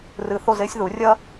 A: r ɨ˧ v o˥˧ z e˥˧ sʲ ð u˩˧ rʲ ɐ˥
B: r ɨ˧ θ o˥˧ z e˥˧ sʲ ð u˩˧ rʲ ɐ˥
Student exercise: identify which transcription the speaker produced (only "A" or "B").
B